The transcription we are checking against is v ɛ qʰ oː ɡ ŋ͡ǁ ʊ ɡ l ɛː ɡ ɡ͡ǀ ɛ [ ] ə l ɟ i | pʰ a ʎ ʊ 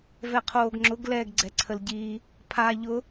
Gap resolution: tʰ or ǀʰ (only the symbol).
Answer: ǀʰ